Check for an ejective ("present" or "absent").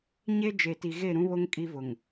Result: present